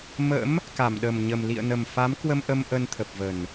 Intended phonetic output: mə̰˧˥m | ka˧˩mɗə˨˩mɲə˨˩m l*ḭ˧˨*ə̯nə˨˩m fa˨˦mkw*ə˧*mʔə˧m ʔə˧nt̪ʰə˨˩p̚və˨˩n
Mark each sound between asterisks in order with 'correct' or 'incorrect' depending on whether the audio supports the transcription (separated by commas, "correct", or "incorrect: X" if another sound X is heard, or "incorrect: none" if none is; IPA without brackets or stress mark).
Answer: correct, correct